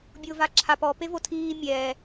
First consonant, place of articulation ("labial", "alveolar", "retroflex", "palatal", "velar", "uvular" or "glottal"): labial